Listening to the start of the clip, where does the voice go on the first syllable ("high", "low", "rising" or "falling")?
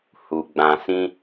low